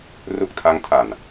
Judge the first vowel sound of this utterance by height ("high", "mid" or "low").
high